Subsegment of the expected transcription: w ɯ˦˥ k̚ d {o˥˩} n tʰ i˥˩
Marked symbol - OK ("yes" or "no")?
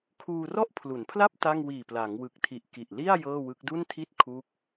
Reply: no